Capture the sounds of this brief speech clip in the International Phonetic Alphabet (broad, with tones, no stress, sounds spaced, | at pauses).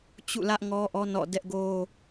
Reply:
t͡ɕ ṵ˦˨ l ä˦ ʔ ŋ ɔ˦ ʔ ɔ˦ n ɔ̰˦˨ d ɛ˦ ʔ ɡ o˦